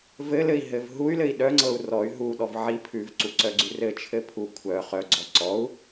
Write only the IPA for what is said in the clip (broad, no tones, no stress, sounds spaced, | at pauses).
v ɘ l ɘ i̯ ɦ ɘ v ɦ u y̯ l ɘ i̯ ɗ œ ŋ͡ǀ ɤ u̯ r ɔ y̯ ɦ u ɗ ɔ v ʕ i pʰ ʉ v ǀ u ǀ œ ɡ͡ǀ ʉ r ɘ t͡ʃʰ ɘ pʰ u kʷʰ œ χ œ ɡ͡ǀ ɔ ǀ ɔ u̯